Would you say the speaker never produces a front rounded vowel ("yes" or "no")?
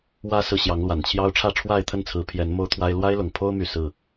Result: no